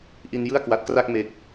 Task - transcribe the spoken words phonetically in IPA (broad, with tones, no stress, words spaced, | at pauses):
ʔi˧njɯ˥˩a̯kwa˨˩t̚kra˥˩k̚ me˨˩k̚